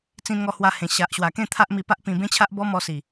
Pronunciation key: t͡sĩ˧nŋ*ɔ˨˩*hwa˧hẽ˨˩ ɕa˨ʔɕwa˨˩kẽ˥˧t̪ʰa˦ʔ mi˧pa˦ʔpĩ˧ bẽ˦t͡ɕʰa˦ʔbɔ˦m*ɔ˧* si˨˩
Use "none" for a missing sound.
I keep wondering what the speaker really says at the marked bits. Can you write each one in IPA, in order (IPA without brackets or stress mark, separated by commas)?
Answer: ɔ˧, ɔ˧